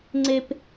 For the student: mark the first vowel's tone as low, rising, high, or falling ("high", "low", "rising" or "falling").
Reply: high